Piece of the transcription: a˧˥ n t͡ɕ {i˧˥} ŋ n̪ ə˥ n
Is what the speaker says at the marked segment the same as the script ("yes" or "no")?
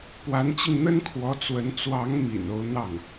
no